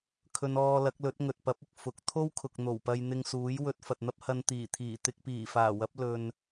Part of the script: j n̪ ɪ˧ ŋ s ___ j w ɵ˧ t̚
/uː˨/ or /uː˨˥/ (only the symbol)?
uː˨˥